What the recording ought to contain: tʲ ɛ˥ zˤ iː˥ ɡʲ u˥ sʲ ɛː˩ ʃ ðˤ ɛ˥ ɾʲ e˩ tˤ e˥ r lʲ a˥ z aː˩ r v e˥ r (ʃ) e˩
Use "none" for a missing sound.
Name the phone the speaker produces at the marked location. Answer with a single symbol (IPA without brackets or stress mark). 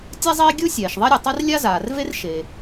ʃ